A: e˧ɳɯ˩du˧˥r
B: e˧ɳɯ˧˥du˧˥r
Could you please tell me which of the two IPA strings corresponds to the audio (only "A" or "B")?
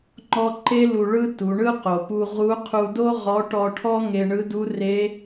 B